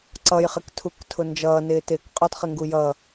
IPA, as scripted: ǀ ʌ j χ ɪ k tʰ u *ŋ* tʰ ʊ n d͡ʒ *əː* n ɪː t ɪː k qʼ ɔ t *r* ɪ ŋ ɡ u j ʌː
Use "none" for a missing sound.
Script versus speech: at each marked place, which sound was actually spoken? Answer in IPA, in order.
k, ʌː, χ

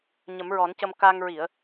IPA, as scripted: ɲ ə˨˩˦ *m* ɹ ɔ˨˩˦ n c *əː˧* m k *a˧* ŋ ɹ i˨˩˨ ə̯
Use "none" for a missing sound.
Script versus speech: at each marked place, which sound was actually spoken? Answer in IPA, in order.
m, ə˧, a˧

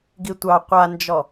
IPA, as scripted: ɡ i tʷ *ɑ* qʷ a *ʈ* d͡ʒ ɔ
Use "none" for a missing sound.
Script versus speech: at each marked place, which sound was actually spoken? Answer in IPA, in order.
ɑ, n

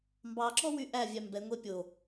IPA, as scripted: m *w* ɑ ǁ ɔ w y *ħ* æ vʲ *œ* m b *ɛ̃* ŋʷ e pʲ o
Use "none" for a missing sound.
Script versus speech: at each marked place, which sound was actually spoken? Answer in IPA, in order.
b, ʔ, æ, ɛ

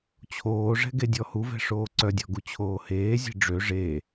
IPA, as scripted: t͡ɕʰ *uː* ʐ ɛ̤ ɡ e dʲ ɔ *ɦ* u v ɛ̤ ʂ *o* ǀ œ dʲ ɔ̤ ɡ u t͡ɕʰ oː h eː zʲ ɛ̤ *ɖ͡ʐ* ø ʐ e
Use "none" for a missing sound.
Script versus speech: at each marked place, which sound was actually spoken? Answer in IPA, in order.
oː, h, oː, ɖ͡ʐ

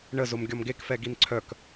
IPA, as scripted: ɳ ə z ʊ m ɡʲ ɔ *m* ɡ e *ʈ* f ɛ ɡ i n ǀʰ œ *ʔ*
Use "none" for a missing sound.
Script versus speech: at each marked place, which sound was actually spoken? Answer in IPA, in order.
m, k, k

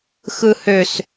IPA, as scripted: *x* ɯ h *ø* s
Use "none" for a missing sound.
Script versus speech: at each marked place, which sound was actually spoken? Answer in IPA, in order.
x, ø

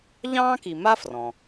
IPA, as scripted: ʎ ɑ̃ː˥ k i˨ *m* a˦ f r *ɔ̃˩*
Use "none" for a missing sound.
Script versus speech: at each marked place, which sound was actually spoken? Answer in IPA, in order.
m, ɔ̃˩

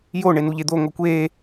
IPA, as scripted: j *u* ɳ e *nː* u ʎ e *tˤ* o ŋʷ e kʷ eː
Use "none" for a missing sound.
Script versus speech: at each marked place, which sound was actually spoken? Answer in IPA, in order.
o, n, d̪

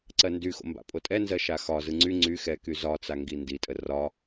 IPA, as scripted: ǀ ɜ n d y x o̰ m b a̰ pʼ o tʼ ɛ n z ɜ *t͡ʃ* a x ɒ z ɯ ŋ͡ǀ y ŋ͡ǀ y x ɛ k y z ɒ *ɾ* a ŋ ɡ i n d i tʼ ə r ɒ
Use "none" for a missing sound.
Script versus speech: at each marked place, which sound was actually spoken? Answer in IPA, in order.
ʃ, t͡s

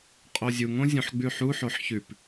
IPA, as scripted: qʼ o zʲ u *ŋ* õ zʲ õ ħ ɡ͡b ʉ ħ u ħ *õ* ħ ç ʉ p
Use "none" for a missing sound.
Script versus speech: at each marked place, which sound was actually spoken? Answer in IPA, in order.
ŋ, o

